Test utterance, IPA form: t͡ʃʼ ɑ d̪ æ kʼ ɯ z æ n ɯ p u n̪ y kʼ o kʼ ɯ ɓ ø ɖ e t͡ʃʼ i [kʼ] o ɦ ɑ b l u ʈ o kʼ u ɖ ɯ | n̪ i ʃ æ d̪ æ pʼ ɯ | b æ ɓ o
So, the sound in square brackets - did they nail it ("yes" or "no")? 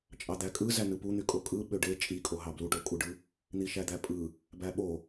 yes